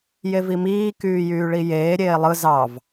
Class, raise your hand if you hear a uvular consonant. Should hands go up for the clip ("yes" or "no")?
no